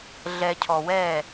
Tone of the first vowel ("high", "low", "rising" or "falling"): low